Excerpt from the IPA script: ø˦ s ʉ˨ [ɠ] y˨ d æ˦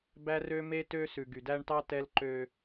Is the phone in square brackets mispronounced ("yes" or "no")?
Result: yes